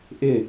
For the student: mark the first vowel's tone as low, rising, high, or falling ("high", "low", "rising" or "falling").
falling